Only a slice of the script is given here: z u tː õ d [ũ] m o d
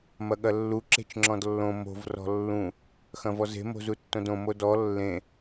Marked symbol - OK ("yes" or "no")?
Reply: no